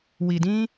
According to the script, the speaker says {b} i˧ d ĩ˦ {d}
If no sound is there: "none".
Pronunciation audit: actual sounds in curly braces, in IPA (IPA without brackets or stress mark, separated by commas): w, none